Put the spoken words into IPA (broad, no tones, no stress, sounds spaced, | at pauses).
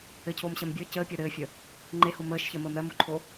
ɘ cʰ oː m ɕ ɜ m bʲ ə˞ c əː pʲ ɜ ɾ ɘː fʲ ə | ŋ͡ǃ e h o m əː ʃ ç ɜ m əː m ɾ ɜ m o ǃʰ o